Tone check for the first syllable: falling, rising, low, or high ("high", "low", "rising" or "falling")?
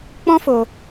high